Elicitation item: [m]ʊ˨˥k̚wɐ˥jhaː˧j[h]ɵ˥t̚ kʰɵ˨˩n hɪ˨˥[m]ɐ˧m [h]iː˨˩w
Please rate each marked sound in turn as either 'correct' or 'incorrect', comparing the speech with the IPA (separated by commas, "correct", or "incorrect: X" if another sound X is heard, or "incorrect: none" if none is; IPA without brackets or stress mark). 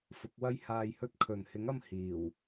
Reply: incorrect: f, correct, incorrect: ŋ, correct